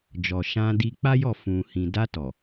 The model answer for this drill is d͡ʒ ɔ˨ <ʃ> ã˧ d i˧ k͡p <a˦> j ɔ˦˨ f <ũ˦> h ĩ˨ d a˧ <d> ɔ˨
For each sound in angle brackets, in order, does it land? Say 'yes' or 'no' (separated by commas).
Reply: yes, yes, no, no